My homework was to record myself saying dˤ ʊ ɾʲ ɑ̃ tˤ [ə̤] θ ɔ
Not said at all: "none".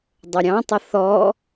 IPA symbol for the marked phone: ə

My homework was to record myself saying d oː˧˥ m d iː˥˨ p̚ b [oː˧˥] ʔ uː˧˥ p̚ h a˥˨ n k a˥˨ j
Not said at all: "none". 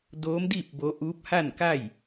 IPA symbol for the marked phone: o˧˥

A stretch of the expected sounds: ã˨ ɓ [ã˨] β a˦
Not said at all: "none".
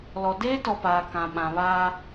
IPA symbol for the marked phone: ã˨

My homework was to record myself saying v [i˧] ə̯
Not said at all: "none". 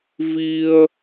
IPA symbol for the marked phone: i˧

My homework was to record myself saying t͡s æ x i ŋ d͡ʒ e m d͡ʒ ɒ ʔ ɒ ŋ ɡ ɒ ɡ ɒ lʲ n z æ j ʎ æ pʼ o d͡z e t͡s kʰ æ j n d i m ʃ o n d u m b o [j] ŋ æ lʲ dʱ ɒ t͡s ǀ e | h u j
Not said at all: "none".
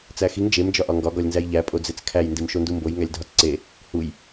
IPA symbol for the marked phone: j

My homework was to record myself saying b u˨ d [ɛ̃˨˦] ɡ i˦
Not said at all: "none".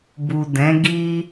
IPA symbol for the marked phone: ɛ̃˨˦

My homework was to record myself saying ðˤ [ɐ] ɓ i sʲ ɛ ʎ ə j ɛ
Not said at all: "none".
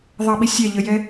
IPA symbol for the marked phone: ɐ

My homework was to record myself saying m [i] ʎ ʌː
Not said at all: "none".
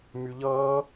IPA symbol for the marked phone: y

